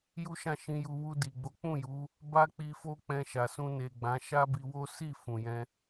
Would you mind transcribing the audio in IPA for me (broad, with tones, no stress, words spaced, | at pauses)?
ju˦ʃã˦˨ʃĩ˧ju˧ wu˧di˨ ɡ͡bo˨˦k͡pũ˦˨ju˨˦ | ba˦ k͡pi˧fo˦k͡pɛ̃˧ʃa˨ sũ˧ne˨ɡ͡bã˨˦ ʃa˦bi˧wo˦ si˦˨ fũ˨jɛ̃˧